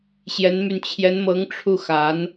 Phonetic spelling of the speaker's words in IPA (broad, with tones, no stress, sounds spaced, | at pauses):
ɕ j ɛ˧˥ n m y˧ n t͡ɕʰ j ɛ˧˥ n m ɤ˧˥ ŋ ʈ͡ʂʰ u˥˩ x a˧˥ n